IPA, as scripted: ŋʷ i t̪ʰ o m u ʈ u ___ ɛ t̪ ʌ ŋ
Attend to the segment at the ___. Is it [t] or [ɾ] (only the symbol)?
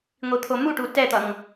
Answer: t